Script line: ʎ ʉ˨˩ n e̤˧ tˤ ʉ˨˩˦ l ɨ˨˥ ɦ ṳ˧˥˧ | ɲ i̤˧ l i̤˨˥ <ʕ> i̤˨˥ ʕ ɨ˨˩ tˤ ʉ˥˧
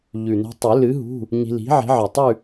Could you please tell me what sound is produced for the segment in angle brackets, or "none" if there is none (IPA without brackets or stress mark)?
ʕ